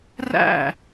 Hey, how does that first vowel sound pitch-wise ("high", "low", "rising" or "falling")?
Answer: falling